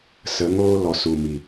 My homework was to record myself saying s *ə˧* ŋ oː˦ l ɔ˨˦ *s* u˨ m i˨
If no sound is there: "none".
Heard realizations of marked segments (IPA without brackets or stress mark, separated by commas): ə˨˦, s